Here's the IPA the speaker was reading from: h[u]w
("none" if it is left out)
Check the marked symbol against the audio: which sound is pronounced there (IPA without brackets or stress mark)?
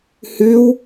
ʉ